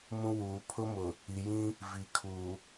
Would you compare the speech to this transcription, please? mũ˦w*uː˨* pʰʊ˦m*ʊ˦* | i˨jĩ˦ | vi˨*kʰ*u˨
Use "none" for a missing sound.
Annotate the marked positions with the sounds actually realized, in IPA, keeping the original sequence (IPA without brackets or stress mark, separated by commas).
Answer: uː˨, ʊ˨, kʰ